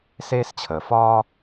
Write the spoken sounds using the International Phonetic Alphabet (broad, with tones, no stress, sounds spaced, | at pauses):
s eː˦ s t͡ɕʰ əː˨ f ɒː˥